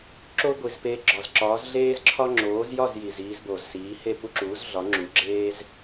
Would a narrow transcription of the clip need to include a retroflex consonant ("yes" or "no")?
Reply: no